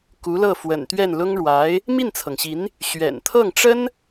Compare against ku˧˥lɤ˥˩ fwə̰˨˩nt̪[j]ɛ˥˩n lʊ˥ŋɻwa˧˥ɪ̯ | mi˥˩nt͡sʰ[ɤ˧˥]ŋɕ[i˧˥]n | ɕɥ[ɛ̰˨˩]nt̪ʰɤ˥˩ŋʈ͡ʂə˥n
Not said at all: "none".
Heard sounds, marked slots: ɥ, ɤ˩, i˧˥, ɛ̰˨˩

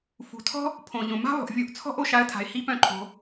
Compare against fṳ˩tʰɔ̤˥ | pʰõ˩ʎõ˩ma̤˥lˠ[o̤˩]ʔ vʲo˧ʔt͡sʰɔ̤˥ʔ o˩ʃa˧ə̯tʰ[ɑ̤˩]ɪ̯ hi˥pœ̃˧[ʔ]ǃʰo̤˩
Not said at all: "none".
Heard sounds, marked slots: o̤˩, a̤˩, none

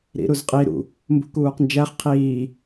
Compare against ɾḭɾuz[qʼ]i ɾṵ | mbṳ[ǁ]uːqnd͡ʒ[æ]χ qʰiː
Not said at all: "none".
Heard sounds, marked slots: qʼ, k, æ

